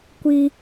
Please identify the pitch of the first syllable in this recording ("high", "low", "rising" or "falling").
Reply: high